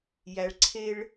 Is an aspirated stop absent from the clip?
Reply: no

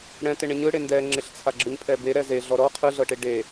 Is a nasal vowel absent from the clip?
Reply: no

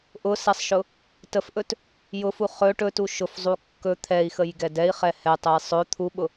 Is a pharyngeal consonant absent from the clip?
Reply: yes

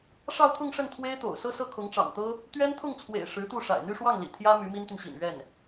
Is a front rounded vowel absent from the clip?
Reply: no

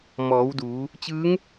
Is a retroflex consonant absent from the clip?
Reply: yes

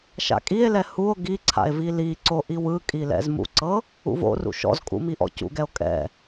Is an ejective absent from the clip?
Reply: no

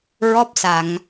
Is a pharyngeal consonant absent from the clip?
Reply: yes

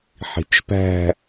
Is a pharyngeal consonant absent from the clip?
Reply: no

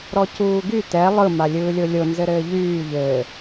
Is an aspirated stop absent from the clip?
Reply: yes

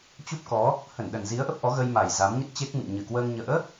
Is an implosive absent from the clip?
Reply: no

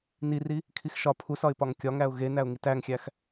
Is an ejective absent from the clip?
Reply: yes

